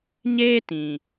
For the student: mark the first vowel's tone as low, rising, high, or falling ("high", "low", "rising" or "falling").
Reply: high